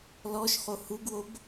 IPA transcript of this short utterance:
l ɔ ʃ χ o h u ɡ w o b

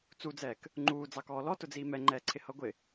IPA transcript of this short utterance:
t͡s u d͡z ɛː k | ŋ͡ǃ uː d͡z ɑ k ɔː l ɔ t ʊ d͡z iː m ɛ ŋ͡ǃ ɛː ǀʰ ɪ h ʌ ɡʷ ɪ

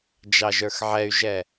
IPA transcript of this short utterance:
d͡ʒ ɑ ʒ ə˞ x ʕ ɛ y̯ ʒ ɛ

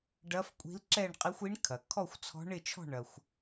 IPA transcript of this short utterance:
ɖ ɐ˧˥ f kʷʼ i̤˧˥ l ǁ ɛ˥˨ ɳ qʼ i˧˥ xʷ i˧˥ ɳ kʰ ɐ˩ kʰ ɔ˥˨ xʷ t͡sʰ ɔ̤˧˥ ɳ ɪ˥˨ t͡ʃʰ ɔ̤˥˨ ɳ ɐ˩ xʷ

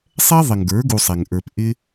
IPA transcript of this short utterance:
sˤ ɛ˦ ðˤ ɪ˨ ŋ ɡ ə˞˨˦ ɡ u˧ sˤ ɛ˨ ŋ ʔ ə˞˧ p ʔ ɪ˦

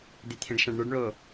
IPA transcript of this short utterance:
d̪ e t̪ʰ ẽ ɖ ʃ ã ɖ ɳ ə˞ ɖ ɳ o

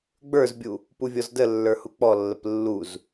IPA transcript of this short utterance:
ɡ͡b ə˞ z bʲ u | p u vʲ ɔ z d ə lː ə˞ h u k͡p ɔ lː ə p lː u z

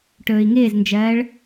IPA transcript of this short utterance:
ʈ ɵː i̯ ŋ ɪː z n d͡ʒ ɜː ɭ

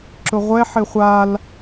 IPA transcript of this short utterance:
ǁ ʊ ʁʷ ɛ ħ ɪ χʷ a l

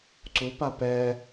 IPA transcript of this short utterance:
ǀ u p a p ɛ

